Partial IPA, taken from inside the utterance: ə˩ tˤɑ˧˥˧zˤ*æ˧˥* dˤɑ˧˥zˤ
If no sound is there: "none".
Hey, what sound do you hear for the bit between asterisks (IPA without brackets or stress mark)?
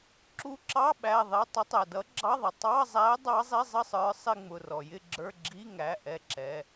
æ˧˥